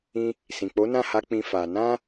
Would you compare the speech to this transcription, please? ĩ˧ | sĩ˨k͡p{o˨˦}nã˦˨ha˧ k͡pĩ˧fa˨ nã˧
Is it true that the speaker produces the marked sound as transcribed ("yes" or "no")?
yes